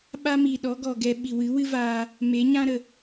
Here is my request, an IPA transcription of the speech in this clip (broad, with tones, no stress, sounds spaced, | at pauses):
ɓ a˦ m i˨ ɗ ɔ˨˦ ɡ ɔ˨ ɡ ɛ˧ ɓ i˨ w ɨ˨˦ w ɨ˦ v aː˧ | m e˨˦ ɲ ã˦ ɾ ə˨